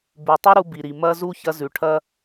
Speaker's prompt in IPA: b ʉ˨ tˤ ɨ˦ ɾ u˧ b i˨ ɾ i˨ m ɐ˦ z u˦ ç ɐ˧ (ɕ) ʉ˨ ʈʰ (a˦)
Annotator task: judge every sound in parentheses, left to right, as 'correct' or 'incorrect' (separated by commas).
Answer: incorrect, incorrect